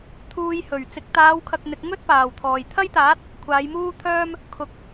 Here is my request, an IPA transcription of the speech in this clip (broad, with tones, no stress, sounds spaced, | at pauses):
t̪ʰ uː˧ j h ɵ˨˩ ɥ t͡s ɪ˨ k̚ t̪ aː˨˧ w kʰ ɐ˨ k̚ n̪ ɪ˨ k̚ ŋ ɵ˥ t̚ p aː˨˩ w t̪ʰ ɔː˨˩ j t̪ʰ ɐ˥ j t̪ aː˨˥ t̚ | kʷʰ aː˨˧ j m uː˥ t̪ʰ œː˥ m | kʰ ʊ˨ k̚